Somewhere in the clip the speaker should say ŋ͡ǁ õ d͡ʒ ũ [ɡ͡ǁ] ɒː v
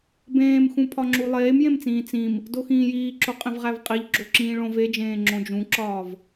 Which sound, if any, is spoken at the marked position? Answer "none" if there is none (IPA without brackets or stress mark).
ǁ